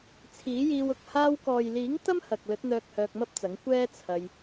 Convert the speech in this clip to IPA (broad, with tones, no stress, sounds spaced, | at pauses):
t͡sʰ iː˨˥ j iː˧ w ʊ˨ k̚ h aː˧ w k ɔː˨ j l iː˨˥ ŋ t̪ ɐ˥ m h ɐ˨ k̚ l ɵ˨˥ t̚ n̪ œː˧ k̚ h œː˧ k̚ m ɐ˥ p̚ t͡s ɐ˨˥ ŋ kʷ ɛː˥ t͡sʰ ɐ˧ j